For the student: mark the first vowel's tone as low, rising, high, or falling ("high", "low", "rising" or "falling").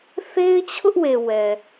high